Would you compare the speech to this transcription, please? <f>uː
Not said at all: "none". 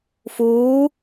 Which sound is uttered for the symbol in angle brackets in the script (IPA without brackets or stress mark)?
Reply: f